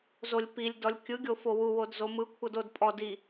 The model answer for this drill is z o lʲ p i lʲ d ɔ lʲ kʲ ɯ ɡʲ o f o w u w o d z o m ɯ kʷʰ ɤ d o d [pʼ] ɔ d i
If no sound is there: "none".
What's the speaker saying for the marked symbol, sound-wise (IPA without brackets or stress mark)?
pʼ